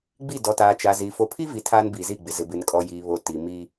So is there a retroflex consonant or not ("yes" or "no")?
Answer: no